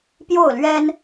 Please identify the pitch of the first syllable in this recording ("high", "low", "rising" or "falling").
falling